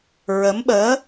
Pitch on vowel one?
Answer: rising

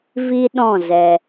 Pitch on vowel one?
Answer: high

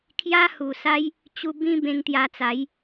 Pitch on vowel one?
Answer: high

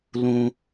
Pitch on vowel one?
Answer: low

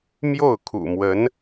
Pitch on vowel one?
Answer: falling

